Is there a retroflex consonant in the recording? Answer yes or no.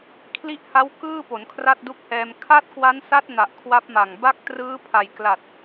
no